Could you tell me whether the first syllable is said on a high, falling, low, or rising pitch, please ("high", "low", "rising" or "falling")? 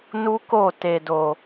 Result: high